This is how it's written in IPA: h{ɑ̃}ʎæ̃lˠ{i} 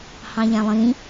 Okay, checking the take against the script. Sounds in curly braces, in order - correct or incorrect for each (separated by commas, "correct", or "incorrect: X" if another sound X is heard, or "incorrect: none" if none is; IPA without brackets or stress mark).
correct, incorrect: ĩ